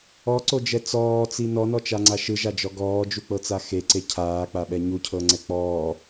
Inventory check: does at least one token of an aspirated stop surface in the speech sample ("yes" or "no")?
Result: yes